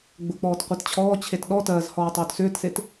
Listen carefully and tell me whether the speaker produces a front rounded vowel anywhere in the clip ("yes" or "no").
yes